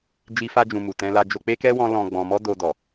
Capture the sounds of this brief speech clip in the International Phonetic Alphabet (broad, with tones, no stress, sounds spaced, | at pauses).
d͡ʒ i˦ f a˦ d͡ʒ ũ˧ m u˨ t ɛ̃˧ l a˧ d͡ʒ o˧ k͡p e˦ k ɛ˦ w ɔ̃˦ l ɔ̃˧ ɡ͡b ɔ̃˧ m ɔ˦ d o˧ d ɔ˨